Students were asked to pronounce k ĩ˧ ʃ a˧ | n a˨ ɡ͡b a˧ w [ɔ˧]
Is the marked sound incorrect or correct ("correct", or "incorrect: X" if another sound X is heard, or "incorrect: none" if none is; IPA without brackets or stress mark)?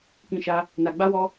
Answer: correct